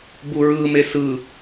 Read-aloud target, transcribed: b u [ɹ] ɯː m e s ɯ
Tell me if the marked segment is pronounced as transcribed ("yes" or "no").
yes